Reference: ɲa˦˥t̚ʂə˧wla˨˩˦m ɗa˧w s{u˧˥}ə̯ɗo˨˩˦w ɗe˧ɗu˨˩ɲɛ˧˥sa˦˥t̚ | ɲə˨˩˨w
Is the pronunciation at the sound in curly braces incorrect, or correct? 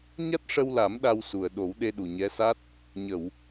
incorrect